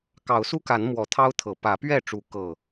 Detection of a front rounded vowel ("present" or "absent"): absent